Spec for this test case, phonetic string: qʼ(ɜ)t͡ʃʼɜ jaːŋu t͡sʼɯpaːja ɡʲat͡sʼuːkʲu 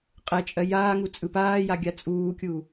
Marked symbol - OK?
no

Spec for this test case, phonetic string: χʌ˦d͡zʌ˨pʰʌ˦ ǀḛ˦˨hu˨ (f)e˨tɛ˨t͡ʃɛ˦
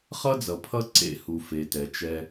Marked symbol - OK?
yes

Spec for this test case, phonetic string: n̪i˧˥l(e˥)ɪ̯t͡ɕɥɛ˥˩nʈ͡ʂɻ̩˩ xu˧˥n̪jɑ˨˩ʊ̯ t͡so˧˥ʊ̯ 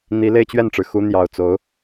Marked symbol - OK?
no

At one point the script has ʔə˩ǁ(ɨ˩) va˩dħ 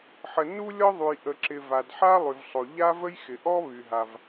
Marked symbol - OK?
no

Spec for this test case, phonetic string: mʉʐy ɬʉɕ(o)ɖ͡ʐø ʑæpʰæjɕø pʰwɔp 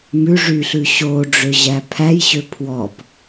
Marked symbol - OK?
yes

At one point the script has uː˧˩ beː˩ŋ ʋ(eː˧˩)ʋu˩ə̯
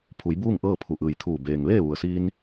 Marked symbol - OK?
no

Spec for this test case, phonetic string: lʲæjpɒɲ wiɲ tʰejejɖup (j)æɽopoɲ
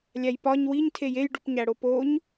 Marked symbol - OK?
no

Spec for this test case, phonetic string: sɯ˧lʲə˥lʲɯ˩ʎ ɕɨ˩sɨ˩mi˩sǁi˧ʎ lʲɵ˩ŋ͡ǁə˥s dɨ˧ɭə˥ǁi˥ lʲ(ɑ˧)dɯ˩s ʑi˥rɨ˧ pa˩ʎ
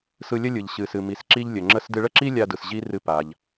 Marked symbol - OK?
no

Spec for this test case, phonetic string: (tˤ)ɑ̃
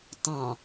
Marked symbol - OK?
yes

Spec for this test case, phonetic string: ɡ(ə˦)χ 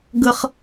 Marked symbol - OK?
yes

